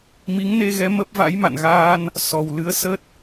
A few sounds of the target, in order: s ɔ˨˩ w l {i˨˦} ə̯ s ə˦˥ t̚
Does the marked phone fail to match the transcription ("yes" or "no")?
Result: yes